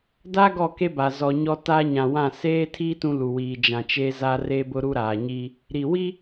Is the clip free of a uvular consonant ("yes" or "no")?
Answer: yes